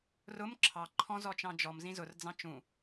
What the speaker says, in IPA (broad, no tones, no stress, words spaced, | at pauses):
rʊm ǁʰɑ ǃʰɔ̃zɔ t͡ʃɑ̃d͡ʒɔm zĩzʊrd͡zɑ̃ t͡ʃũ